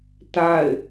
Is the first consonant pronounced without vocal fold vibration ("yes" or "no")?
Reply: yes